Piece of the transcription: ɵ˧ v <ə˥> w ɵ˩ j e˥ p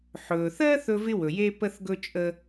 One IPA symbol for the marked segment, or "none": ɪ˥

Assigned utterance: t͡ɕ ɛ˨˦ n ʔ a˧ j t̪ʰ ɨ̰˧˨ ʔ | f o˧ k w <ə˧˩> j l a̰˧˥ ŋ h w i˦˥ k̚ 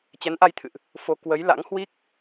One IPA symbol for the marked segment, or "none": ə˨˦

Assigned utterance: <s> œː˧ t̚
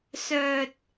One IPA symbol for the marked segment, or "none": s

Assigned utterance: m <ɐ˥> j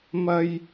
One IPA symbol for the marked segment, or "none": ɐ˥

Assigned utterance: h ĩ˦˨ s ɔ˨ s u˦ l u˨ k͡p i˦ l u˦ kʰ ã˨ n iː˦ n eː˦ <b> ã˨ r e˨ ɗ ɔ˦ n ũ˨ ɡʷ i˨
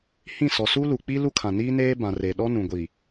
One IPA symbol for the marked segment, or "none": b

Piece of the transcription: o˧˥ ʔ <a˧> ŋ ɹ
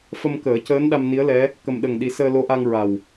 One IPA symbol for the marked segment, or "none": a˧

